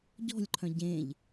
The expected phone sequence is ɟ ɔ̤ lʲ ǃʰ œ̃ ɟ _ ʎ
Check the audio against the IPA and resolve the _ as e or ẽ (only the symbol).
ẽ